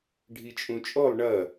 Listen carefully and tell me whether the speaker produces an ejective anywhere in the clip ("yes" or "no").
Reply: yes